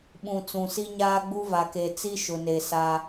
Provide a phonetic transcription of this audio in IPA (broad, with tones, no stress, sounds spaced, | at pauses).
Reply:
ɓ ũ˨ t͡s ũ˨ s i˦ ɲ aː˦ ɡ͡b u˦ v a˨ k e˨ t͡s i˦ ʃ ʊ˨ n e˨ s a˦